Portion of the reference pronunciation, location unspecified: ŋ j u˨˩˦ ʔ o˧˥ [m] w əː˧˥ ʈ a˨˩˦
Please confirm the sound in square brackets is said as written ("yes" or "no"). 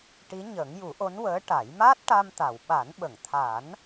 no